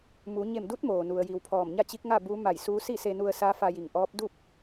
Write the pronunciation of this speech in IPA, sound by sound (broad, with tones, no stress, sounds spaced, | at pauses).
m u˩˧ ɲ e˧˩ m d u˧˥ t̚ m oː˩ n u˩ ə̯ j i˩ w pʰ ɔː˧˩ m ɲ a˥˨ t͡ɕ i˧˥ k̚ ŋ a˥˨ b u˧˥ m a˧˩ j s uː˧˥ s i˥˨ s e˧ n u˧ ə̯ s a˧˥ f a˧ j i˧˩ ŋ ʔ ɔː˧˥ p̚ d u˥˨ p̚